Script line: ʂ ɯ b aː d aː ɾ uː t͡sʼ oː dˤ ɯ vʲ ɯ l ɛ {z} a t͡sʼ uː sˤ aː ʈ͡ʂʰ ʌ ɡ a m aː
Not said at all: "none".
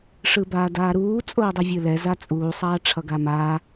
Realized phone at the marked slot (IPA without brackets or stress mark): z